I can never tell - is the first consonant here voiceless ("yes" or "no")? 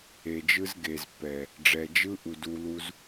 no